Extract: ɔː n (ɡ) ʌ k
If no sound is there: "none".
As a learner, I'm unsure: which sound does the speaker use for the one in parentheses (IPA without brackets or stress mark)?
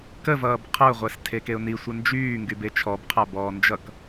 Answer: d͡ʒ